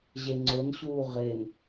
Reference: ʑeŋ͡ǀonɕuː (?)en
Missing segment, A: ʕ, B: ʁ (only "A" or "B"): B